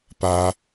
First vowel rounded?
no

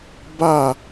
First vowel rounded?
no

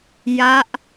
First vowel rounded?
no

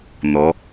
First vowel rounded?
yes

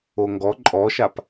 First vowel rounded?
yes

